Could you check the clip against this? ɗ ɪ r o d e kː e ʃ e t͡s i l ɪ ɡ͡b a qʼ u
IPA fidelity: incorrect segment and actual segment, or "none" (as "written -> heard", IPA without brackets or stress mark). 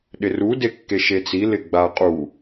o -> u